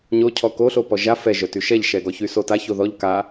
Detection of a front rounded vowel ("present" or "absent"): present